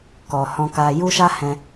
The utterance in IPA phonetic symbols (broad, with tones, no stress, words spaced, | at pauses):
kɔ˨hɔ̃˧ka˧ ju˦ʃa˦hɛ̃˧